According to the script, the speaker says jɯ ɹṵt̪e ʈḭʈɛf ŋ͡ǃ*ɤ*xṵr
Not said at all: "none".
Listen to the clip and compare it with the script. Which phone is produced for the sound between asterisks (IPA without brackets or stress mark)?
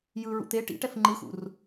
ɯ